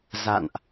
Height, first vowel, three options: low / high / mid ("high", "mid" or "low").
low